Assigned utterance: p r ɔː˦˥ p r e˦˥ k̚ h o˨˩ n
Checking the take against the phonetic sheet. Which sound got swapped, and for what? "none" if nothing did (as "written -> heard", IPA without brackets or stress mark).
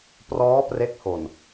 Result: none